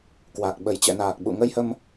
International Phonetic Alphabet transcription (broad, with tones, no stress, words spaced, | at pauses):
kwa˨˩k̚ ɓə˧˩jt͡ɕɛ̰˧˨naː˨˩k̚ ɓṵ˧˨ŋə˧jhə˧m